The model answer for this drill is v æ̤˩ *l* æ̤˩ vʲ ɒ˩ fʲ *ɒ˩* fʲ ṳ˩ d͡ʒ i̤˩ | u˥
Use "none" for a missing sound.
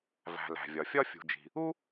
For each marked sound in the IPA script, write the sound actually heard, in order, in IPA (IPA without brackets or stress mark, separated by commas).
l, ɒ˥